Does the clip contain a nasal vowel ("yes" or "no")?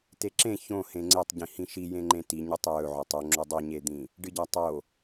yes